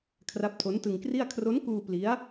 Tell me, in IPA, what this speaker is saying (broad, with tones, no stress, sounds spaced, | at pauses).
kʰ r a˦˥ p̚ tʰ o˦˥ n t ɯ˧ ŋ k r i˥˩ a̯ kʰ r o˦˥ n k uː˧ p l i˦˥ a̯